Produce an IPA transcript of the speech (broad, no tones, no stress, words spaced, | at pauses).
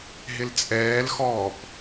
ɦɪlt͡sʼɛːlxɔːp